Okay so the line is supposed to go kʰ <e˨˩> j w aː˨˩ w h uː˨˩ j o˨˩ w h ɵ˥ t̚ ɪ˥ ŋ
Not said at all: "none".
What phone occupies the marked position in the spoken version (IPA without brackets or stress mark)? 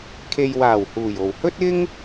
e˨